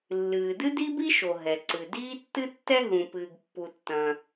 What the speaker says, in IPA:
lː ɨː˩ d ɨ˥ d i˥ b i˥ ʃ o˩ ɦ ɛ˩ ǀ ɨ˩ d iː˥ tː ɨ˥ tː ɛ˥ ɦ ũ˩ p ɨː˩ ɡ pː u˩ tː ɐ̃˩

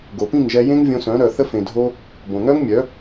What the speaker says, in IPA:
ɡ o˨ p ĩ˦˨ ŋ ʒ ɛ˧ j ẽ˦ ŋ vʲ õ˧ s œ̃˨˦ ɾ œ˨ θ ə˧ f ẽ˨ dʱ o˧ | b õ˨ ŋ œ˦ ŋ mʲ œ˨˦

